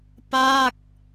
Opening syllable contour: falling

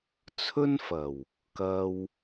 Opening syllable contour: high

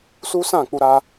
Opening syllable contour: high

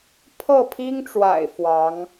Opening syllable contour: falling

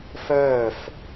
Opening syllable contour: falling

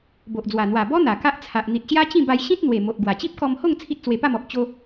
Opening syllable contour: low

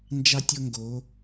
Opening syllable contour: high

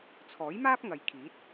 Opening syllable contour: rising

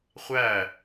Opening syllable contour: falling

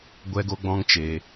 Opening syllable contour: high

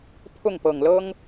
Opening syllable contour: falling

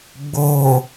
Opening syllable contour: low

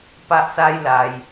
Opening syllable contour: high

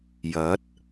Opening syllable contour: rising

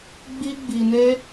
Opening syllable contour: high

